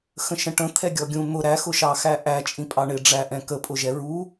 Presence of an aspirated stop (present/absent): present